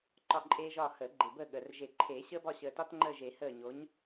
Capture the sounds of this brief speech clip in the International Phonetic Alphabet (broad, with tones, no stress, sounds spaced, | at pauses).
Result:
ǃ ɒ˦˨ ǃʼ eː˦ ʒ ɒː˦˨ h əː˨˩˦ ɡ͡ǃ e˨˩ b əː˦˨ ɠ əː˨˩ r ʒ e˨˩˦ ǃʰ eː˨˩˦ ɕ əː˦ b ɒ˦˨ ɕ əː˨˩ t ɒ˦ t ŋ͡ǃ əː˦˨ ʒ e˨˩˦ h əː˦˨ ɲ o˨˥ ɲ